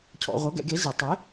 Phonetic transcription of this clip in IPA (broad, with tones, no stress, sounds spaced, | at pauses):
cʰ ɔ̰˧ ʁʷ ɤ˨˥ ɡ ɛ̰˨˩˦ ɡ e˨˥ z e˨˩˦ tˤ e˨˥